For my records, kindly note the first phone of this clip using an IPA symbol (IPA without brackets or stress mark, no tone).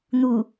n̪